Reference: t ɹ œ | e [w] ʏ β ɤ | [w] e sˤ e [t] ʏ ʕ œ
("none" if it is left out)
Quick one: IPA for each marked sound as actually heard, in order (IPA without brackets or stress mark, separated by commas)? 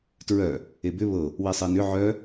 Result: b, w, n